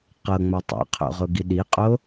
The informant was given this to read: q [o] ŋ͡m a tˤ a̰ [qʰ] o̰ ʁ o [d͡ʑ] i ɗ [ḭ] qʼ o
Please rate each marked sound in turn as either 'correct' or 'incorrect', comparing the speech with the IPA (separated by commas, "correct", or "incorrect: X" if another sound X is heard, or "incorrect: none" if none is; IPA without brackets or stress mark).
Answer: incorrect: ɤ, correct, incorrect: ɡ, incorrect: i